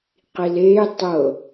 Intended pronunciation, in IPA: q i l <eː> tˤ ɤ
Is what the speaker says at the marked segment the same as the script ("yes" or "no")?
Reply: yes